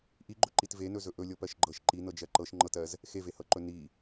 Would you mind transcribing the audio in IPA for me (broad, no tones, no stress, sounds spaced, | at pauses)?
ʔ i ɡ͡ǃ ɵ ǃ i t v e n ɵ z ɵ ʔ ɵ lʲ ɤ p ɜ ʃ ɡ͡ǃ ɤ ʃ ǃ i n ɤ d͡ʒ ɜ ǃ ɤ ʃ ŋ͡ǃ ɤ t ɜ z | x e v e h ɤ ǃ ɵ n i